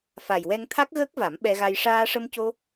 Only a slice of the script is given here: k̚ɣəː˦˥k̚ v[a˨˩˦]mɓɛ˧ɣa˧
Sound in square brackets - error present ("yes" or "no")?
no